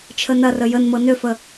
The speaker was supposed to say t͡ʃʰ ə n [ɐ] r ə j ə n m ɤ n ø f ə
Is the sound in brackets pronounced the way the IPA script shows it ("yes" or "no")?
yes